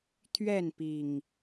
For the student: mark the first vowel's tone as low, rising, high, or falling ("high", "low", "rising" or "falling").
falling